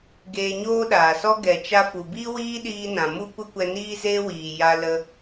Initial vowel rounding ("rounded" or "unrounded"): unrounded